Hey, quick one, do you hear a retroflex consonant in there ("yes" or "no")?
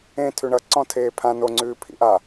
yes